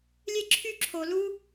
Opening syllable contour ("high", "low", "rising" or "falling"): high